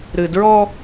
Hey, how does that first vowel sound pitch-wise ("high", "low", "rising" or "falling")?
low